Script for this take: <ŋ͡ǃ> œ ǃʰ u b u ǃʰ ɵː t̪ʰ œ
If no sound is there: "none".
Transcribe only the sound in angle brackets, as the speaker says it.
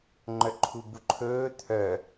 ŋ͡ǃ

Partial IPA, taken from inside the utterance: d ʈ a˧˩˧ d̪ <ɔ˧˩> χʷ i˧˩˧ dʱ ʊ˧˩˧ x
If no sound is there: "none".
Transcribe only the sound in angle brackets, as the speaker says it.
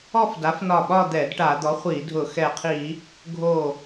ɔ˩˥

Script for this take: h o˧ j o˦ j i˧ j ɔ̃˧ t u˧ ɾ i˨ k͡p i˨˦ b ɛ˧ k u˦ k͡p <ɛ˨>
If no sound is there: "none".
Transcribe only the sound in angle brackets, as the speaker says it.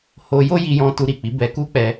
ɛ˧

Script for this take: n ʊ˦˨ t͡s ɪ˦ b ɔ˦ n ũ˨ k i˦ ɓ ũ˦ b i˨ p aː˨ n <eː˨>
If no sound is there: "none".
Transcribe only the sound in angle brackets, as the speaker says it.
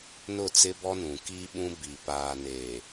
eː˨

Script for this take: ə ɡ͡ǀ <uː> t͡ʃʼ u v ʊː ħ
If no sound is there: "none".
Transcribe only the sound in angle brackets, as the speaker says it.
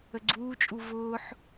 uː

